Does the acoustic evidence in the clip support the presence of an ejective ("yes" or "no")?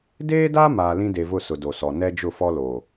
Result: no